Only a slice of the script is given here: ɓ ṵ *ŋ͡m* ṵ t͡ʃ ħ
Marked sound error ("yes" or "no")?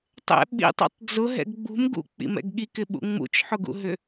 no